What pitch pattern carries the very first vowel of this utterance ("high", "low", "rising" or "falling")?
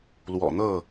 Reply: low